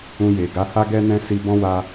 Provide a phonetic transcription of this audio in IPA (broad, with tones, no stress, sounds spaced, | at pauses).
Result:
ũ˧ j e˨ ɡ a˨˦ h a˦ ɡ ɛ˦ n ɛ̃˦ s i˧ b ɔ̃˦ w a˧